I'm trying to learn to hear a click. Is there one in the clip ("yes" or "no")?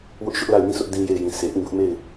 no